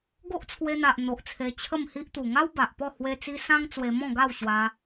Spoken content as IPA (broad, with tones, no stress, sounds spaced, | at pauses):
ɡ o˦ ʔ t͡sʰ w e˧ n̪ a˨ ʔ n̪ o˨ ʔ t͡sʰ e˧ t͡ɕʰ ə˥˧ m h i˦ ʔ t̪ u˨˩ ŋ a˦ w b a˨ ʔ p ɔ˥˧ h w e˧ t͡s i˧ s ã˦ ŋ t͡s w e˧ m ɔ̃˥˧ ɡ a˥˧ w ɕ w a˧